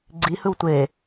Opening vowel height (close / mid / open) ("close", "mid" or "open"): close